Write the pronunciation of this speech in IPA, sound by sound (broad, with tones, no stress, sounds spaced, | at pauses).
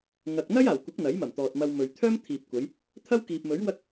ŋ ɐ˨ k̚ n̪ ɐ˥ j aː˨˩ w kʷ ɪ˨˥ k̚ n̪ ɐ˨˥ j m ɐ˨˩ m t̪ ɔː˨ t̚ m ɐ˧ w m ɵ˨ ɥ t̪ʰ œː˥ m t̪ʰ iː˨ p̚ kʷ ɐ˨˧ j | t̪ʰ ɐ˥ w k iː˨ p̚ m ɵ˨˥ ɥ w ɐ˥ k̚